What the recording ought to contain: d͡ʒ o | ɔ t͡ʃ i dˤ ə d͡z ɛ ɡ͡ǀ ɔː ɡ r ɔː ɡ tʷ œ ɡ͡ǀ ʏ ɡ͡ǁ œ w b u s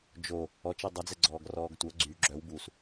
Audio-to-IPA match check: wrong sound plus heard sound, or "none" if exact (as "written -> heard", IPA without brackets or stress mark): ʏ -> y